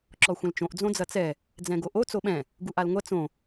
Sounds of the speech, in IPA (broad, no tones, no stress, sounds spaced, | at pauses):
ǁ ɔ xʷ ɐ̃ l t͡ʃ õ ʔ d͡z õ d͡z ɐ t͡s ɛ | d͡z ɛ̃ ɡ o ʔ o t͡s o ɓ ɛ̃ | ɡ u ʔ a l ŋʷ ɐ t͡s õ